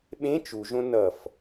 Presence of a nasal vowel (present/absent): present